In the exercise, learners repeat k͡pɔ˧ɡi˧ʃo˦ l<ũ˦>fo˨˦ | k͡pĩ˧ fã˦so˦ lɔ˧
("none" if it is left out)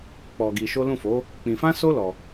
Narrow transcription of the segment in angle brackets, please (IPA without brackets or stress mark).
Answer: ũ˦˨